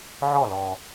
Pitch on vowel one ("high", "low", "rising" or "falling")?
falling